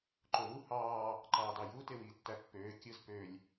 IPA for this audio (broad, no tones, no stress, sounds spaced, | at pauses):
ǃ o w u h ɑː | ǃ ɑː d ɑ j uː t e w iː tː æ pː øː kʲ ɯ z p ø lʲ